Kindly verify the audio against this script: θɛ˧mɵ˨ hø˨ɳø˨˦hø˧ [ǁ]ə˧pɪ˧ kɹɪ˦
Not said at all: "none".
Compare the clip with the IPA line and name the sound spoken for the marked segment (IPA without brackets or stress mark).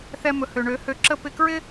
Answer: ǁ